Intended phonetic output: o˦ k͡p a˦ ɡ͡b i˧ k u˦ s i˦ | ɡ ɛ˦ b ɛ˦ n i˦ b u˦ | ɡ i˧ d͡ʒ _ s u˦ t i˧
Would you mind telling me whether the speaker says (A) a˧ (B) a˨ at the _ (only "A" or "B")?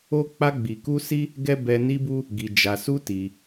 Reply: A